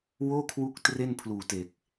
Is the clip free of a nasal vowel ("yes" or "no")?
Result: yes